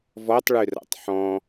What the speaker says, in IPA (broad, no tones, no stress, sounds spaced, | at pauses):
v ɔ tˤ ɭ ʉ r a̰ tˤ ħ ɔ̃